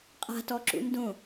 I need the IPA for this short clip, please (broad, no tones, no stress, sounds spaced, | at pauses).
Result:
qʼ a̤ t ɔ ǁ ṵ n d õ